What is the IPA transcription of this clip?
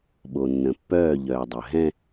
ɓ o˨ nː ə̃˨ pː œː˦˨ ʎ œː˨ dˤ œ˨ ɦ ɛ̃˦

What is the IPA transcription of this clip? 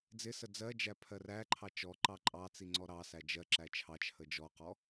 d͡z ɪ s ə d͡z ɜ d͡ʒ æ pʰ ɜ r æ ǃʰ ɑ t͡ʃ ɔ ǃ ɑ ǃʼ ɑ t͡s i ŋ͡ǀ ɔ ɾ ɑ s æ d͡ʒ ɜ ǁ æ t͡ʃʰ ɑ t͡ʃʰ ə d͡ʒ ɔ q ɔ

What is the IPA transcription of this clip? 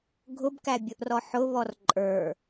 ɡʱ ʊ b k æ bʲ ʊ ʔ r ɔ ħ ʊ β ɔ r ǃʼ ə˞

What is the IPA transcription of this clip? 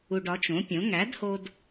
u˧ ɖ ɒ˨˥ t͡ʃ õ˨˥ pʲ õ˨˥ ŋ æ˨˥ d h o˧ d

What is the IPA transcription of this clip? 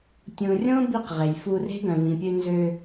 tʲ ũ˨ rʲ õ˦ b i˦˨ q ʁ e˨ j f u˧ r e̤˦ ɡ œ̃˨ v ĩ˨ pʲ ø˧ n z ø˧

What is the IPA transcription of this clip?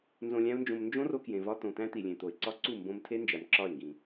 n z õ˧ lʲ æ̃˦ ʊ̯ n d͡ʒ õ˧ m n d͡ʒ õ˦ r o˧ k j ẽ˨ v ɒ˧ t̪ õ˨ t̪ æ̃˦ t̪ i˨ lʲ ẽ˨ t̪ o˨ ɪ̯ ǀ ɒ˦ ǀ u˦˨ m b õ˧ m tʰ e˦ n d͡ʒ æ˨ m ǁ ɒ˦˨ ɪ̯ ŋ ɡ ĩ˨

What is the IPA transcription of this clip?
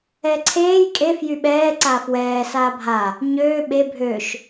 ɛ ǀʰ eː j kʼ e f j y ɓ ɛː ǀ aː f w ɛː s aː bʱ a | ɲ øː ɓ e bʱ ø ʃ

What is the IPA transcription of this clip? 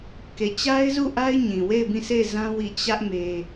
k e˨ t͡ɕ a˦ ɪ̯ z u˦˨ ʔ a˦ ɪ̯ ɲ ĩ˨ w e˦˨ ɪ̯ b ĩ˦˨ s e˦˨ ɪ̯ z ã˦ w i˦˨ t͡ɕ ä˦ ʔ m e˦

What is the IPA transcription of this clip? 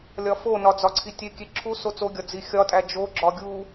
lʲ ɒ f o n ɒ d͡z ɒ ǀʰ i tʲ e kʲ e ǁʰ u s o t͡s o ɡʲ ɒ d͡z i xʲ ɒ tʼ æ d͡ʒ o ɡ͡ǁ ɒ ɡʲ u

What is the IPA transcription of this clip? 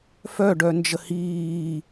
f œ ɖ œ n d͡ʒ ə h iː

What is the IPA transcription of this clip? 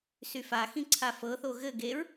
s y f a x ĩ ǀʰ a f ɤ θ o ɣ ɘ ɡ e ɹ

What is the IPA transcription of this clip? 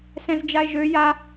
s ɛ̃ z d͡ʒ a e̯ ʒ ø j a

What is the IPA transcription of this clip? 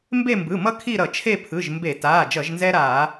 m b e˦˨ m b ɯ˩˧˩ m ʌ˦ kʰ i˦˨ ɾ ʌ˧˩˧ t͡ʃʰ e˦˨ pʰ ɯ˩˧˩ ʒ m b e˧˩˧ t aː˩˧˩ d͡ʒ ʌ˧˩˧ ʒ n z ɛ˦ ɾ aː˧˩˧

